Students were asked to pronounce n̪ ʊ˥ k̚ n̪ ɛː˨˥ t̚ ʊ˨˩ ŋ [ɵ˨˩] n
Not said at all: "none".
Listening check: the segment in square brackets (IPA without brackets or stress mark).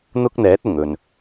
ɵ˨˩